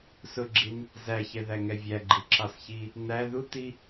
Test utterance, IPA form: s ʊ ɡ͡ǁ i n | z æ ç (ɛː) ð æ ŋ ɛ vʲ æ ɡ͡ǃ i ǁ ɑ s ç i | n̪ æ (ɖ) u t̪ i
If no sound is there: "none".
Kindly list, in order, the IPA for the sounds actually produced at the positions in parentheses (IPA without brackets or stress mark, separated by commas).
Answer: ɛ, ð